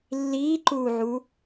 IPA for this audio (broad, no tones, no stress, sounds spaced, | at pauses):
lː iː ǃ uː ʕ u